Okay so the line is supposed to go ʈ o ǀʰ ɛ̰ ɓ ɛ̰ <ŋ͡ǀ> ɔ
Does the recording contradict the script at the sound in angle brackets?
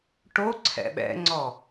no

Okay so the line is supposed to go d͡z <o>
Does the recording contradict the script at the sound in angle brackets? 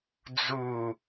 yes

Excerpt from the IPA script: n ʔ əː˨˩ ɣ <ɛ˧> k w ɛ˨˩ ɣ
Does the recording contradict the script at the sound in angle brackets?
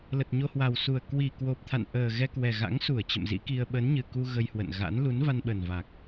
no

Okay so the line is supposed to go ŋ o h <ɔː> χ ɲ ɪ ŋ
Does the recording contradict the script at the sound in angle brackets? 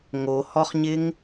yes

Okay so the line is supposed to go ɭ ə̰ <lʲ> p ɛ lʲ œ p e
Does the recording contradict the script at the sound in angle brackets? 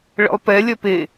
yes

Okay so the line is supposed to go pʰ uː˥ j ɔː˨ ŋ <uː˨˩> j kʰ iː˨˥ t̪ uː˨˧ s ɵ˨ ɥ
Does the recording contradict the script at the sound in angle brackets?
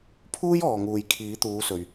yes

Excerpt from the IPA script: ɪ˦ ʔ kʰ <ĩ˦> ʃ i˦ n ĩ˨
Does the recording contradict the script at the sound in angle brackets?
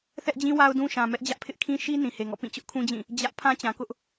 no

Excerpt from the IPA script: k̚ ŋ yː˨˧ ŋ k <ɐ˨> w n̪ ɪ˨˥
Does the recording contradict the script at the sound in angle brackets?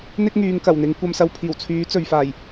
yes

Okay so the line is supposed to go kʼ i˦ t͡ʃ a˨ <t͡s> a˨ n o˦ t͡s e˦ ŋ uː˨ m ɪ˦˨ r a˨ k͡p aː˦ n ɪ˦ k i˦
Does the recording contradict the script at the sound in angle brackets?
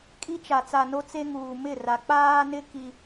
no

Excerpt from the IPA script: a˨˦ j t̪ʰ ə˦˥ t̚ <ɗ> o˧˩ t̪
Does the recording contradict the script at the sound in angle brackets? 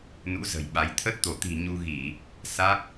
yes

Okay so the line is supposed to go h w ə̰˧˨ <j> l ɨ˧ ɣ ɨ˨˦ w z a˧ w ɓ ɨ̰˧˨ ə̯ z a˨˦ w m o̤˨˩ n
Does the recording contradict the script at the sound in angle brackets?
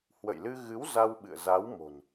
no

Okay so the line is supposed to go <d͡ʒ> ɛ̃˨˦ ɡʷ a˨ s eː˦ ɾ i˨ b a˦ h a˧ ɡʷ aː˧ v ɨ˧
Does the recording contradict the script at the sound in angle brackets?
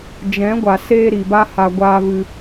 no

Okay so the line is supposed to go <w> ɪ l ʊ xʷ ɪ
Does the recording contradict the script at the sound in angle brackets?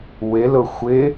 no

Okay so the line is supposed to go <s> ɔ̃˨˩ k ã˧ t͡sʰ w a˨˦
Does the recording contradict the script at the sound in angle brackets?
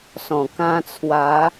no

